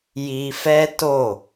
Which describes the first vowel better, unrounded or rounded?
unrounded